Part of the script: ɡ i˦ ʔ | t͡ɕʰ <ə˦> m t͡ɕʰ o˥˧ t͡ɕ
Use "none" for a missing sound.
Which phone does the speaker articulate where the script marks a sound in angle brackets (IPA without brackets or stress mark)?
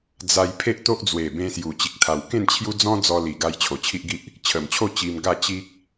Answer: ə˨˩